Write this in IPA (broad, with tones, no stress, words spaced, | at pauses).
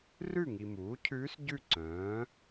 rʉ˥˨ŋi˨muː˩˥cʰʉː˧˥s ɟʉ˥˨ǀœ̃ː˩˥